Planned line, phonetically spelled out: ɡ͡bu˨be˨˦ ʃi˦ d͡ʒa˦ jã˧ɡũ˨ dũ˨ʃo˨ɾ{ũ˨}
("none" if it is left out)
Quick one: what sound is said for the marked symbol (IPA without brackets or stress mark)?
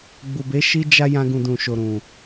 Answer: ũ˨